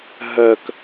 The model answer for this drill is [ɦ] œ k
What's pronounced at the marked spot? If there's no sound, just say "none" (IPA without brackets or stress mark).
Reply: ɦ